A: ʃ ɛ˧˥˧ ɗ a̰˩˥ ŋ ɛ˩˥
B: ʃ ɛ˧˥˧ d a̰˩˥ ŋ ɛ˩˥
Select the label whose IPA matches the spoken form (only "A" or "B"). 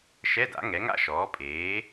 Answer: B